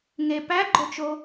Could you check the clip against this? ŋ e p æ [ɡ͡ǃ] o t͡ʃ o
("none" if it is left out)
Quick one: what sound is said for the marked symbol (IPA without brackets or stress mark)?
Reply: ɡ͡ǃ